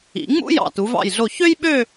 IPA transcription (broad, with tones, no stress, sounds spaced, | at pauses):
ḭ˩˧ ŋ͡m ṵ˥ j ɑ̰˧˩ t u˩˧ v ɑ̰˧˩ j ɮ o˧˩ ç ø˥ j ɓ ø˥˧